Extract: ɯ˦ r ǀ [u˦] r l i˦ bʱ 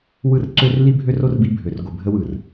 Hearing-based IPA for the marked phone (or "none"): ø˦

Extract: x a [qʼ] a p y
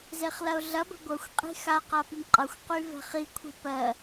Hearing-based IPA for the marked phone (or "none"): q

